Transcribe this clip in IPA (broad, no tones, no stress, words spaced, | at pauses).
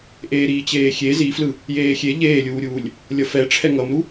ʔeːɾiːt͡ɕeːxʲe ziflɯ | jeːxʲe ʎeːlʲuːɾʲuːlʲ | lʲʌfɛ ʈ͡ʂʰɛŋʌmɾu